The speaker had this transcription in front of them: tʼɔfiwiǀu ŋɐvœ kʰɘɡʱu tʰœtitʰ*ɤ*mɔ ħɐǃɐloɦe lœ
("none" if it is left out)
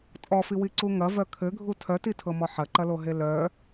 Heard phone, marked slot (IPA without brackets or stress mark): ɤ